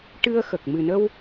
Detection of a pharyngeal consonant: absent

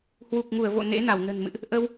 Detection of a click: absent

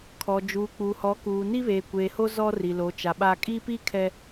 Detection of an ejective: present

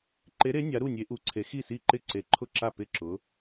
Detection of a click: present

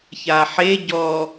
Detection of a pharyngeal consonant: present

